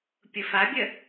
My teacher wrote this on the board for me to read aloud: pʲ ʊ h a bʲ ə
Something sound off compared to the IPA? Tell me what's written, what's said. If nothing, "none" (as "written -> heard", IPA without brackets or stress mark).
h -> f